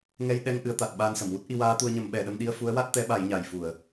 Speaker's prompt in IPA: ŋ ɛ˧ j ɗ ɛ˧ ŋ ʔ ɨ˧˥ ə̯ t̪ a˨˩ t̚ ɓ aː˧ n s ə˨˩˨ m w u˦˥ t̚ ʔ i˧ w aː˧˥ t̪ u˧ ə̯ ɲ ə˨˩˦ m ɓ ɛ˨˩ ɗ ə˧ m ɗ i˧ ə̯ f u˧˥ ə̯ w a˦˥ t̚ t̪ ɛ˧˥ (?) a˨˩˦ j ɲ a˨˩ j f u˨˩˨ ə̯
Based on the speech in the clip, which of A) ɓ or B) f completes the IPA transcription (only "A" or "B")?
A